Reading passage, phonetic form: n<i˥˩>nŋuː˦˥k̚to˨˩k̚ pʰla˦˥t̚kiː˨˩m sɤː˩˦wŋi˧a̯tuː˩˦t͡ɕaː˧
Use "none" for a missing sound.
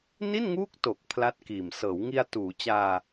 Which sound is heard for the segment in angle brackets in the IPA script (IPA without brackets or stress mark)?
i˥˩